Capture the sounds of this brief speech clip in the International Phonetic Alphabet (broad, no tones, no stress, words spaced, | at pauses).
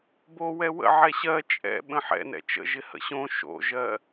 bo wɛwə̰ ʕɛɕɜ t͡ʃʼɛ̰ ɓə̃ħɛ̰ nɛ̰t͡ʃə̰ ʒɪhə̰ɕõ ʃo̰ʒɜ